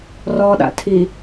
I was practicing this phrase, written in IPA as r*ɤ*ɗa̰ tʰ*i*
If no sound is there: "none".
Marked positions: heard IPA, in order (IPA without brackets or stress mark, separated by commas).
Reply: ɔ, i